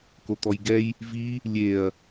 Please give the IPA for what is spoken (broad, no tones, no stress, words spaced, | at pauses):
kot̪ɔjɡɛj | vi | lʲeɐ̯